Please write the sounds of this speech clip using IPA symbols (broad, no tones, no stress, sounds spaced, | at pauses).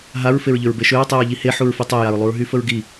ɦ a ɹ f e ɹ ʎ ʏ ɹ b e ʃ ø ɹ tˤ i ɹ ʎ i h e ħ u ɹ f i tˤ o j a ɹ lˠ u ɹ ɦ y f ə ɹ ɡ i